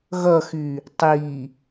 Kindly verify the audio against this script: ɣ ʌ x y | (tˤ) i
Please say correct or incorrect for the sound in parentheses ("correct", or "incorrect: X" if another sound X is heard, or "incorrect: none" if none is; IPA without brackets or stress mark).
correct